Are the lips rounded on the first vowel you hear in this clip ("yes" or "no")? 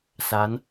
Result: no